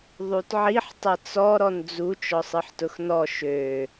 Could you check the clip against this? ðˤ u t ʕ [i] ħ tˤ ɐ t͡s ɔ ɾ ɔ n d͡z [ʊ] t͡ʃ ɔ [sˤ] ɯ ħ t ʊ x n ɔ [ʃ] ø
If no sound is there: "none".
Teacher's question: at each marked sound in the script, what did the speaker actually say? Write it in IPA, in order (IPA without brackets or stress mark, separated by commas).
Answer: i, u, sˤ, ʃ